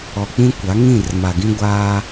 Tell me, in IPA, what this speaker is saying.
ɔ˨ k͡p ĩ˦ kʷ a˨˦ ŋ ĩ˦˨ r m a˨ ɡ ĩ˦ ɡʷ aː˦

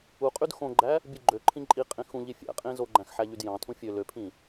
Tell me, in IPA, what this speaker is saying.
u qʼ y d x õ ɡ͡ǃ æ | bʲ ɯ ɡ͡ǃ ø ǃʰ ĩ ǃʼ i qʼ ĩ x ũ ʎ i fʲ æ̰ qʼ ĩ z o ɡ͡ǃ æ̃ x ħ æ ʎ y d j ɑ̃ tʰ ũ fʲ ø l ø pʰ ĩ

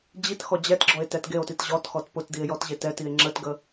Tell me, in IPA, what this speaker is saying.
d͡ʑ i t x ɔ d͡ʑ ɛ t ɡ͡ǁ ɔ e̯ t ɛ t ɡ e o̯ t i t ʑ ɔ t x ɔ t p ʊ t d i e̯ j ɔ t ʑ e t ɛ t i e̯ ŋ͡ǁ ə t ɡ ə

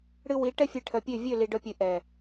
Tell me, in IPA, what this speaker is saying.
ɽ ɨ˧ w i˨˦ ʈ ɛ˦ fʲ e˧ ʈʰ œ˨ pʲ ø˦˨ vʲ ø˦˨ l i˨ ɖ œ˧ pʲ ɨ˨ ʔ ɛ˨

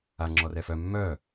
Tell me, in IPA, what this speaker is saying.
a ŋ͡ǁ ɔ r ɛ f œ mː œ

